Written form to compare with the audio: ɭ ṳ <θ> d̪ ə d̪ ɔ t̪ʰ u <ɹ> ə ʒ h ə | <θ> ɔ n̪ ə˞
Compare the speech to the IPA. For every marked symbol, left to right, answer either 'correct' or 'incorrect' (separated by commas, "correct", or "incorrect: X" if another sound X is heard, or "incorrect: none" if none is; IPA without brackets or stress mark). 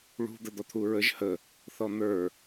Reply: incorrect: none, correct, correct